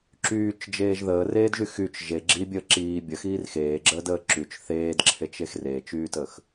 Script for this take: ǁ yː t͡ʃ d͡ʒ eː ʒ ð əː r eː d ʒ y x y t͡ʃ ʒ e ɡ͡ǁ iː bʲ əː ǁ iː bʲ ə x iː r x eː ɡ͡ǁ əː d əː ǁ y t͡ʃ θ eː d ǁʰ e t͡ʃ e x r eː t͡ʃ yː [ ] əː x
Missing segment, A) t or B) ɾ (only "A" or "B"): A